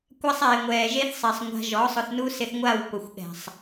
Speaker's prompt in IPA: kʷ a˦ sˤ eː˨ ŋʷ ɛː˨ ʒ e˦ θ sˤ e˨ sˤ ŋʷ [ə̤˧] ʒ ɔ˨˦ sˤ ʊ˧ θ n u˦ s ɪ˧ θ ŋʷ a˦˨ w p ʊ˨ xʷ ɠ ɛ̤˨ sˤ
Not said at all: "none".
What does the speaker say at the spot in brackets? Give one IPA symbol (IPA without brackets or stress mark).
a̤˧